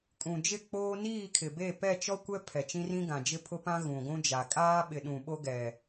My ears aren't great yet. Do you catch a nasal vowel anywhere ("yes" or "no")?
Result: yes